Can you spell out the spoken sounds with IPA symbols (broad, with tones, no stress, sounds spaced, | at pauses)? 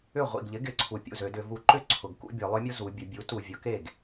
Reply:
ʏ˥˩ ʁʷ ḭ˨˩ ɡ ʎ ɪ˩˥ ɡ ɪ˩˥ ǀʰ u˨˩ pʲ ṵ˥˩ z ø˩˧ d ʏ˧˩˧ v u˩˥ ǃ ʏ˥˩ ǀʰ ʊ˨˩ ɡ k ṵ˦ bʲ œ˩˧ lˠ œ˦ mʲ o˦ z u˩˧ bʲ ʊ˧˩˧ bʲ u˩˥ t u˨˩ vʲ ʊ˧˩˧ k e˥˩ ɡ